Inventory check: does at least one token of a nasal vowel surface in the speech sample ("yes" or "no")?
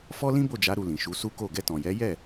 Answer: yes